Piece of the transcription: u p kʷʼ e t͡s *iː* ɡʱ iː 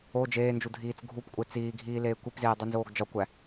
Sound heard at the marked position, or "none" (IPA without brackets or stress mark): iː